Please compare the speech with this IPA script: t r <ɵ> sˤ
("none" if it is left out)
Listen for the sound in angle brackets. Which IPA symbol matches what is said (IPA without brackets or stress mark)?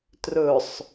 ɵ